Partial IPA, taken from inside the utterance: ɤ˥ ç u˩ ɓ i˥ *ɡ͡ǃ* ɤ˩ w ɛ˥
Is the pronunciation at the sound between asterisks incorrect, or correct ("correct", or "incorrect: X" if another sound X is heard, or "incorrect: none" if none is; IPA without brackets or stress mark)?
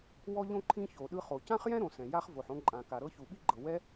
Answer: correct